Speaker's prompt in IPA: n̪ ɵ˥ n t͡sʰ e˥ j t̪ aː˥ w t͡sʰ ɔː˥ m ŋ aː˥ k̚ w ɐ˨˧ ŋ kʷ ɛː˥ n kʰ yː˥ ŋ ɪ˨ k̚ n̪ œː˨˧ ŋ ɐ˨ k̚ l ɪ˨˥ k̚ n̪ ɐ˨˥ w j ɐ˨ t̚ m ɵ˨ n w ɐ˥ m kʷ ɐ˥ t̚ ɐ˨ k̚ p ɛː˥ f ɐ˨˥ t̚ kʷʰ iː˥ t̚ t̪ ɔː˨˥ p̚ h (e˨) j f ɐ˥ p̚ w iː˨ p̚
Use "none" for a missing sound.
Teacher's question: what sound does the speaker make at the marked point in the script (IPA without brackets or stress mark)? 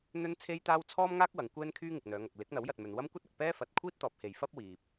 e˨